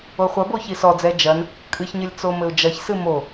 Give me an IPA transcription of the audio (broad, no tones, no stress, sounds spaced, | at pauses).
o χʷ ɐ b o ç i s ɔ d͡z ɛ d͡ʒ ɐ n | kʼ ɨ ç ɲ ɘ lʲ t͡s o m ɘ ʊ̯ d͡ʒ ɐ ç s ɨ m o